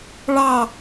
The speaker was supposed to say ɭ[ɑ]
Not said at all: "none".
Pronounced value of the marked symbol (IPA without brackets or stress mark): ɑ